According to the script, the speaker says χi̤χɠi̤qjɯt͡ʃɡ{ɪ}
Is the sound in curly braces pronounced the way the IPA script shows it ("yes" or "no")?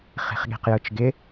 yes